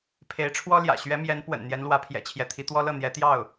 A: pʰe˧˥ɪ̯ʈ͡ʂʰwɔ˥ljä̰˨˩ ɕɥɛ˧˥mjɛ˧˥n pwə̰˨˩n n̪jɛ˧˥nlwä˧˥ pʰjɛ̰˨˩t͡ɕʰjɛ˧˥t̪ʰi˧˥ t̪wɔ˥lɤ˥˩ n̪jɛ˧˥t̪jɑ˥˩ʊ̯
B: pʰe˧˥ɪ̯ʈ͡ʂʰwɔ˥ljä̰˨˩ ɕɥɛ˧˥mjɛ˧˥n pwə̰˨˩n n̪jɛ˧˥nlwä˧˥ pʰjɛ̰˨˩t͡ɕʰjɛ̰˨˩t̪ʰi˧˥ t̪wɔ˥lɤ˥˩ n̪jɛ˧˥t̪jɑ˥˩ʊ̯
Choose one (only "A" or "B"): A